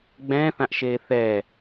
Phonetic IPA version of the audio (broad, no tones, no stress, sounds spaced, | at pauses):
ɡ͡b ɛ̃ː θ ã ʔ ʃ eː θ ɛː